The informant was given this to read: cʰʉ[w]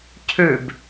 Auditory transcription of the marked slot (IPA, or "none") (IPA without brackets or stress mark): b